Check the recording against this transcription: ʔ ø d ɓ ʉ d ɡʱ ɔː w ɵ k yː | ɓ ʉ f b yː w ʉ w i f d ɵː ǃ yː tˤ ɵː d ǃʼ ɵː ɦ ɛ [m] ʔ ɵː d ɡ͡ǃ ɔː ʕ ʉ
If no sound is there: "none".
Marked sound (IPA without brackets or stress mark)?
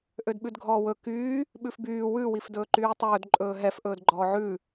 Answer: f